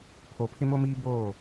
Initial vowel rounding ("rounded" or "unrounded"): rounded